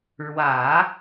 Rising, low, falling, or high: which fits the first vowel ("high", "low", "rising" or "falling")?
low